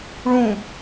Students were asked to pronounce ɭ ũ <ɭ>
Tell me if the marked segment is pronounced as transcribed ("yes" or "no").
no